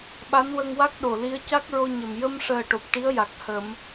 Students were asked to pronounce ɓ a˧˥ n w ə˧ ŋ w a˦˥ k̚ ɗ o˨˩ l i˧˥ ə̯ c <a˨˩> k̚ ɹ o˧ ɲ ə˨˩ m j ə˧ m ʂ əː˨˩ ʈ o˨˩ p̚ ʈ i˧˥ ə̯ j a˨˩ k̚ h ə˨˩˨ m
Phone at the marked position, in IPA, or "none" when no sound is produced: a˦˥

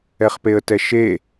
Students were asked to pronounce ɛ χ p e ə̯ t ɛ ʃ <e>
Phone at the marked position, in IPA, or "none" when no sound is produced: e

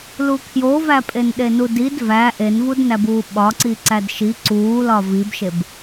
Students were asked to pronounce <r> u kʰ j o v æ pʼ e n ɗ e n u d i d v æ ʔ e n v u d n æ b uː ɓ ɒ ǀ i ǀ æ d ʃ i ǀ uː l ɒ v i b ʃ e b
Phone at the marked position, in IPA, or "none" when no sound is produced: l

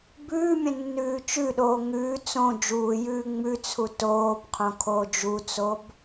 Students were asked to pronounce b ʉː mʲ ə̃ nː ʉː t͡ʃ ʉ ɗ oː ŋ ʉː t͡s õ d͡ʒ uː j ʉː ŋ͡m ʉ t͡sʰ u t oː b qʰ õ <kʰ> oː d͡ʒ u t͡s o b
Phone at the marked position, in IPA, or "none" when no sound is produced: kʰ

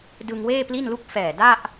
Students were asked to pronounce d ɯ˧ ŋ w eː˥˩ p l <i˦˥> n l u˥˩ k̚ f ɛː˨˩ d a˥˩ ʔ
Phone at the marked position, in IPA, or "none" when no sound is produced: i˥˩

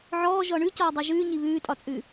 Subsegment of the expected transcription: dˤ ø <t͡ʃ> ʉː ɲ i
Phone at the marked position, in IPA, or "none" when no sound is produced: ʒ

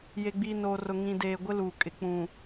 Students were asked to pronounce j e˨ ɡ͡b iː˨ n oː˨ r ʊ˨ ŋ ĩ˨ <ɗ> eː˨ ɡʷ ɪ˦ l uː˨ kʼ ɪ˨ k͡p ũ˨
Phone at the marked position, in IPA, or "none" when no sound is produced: d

